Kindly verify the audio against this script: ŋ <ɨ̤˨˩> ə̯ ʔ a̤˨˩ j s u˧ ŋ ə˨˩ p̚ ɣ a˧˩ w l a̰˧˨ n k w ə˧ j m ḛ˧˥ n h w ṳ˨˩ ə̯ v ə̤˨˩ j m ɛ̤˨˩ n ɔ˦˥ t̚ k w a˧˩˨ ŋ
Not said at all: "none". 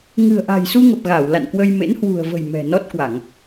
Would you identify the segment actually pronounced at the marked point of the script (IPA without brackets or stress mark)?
ɨ̤˨˩